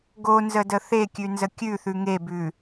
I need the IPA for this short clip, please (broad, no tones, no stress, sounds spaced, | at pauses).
ɡ o n z ə d ə θ e kʲ ʉ n z ə kʲ ʉ θ ʉ ŋ e b ʉ